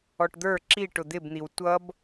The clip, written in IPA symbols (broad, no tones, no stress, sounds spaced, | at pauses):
ɔ ʈ d̪ ə˞ ǁ i ʈ ʊ d̪ ɪ b n̪ i w tʷ ʌ b